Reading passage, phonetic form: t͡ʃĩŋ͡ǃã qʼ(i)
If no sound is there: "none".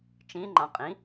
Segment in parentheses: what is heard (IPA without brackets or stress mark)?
ĩ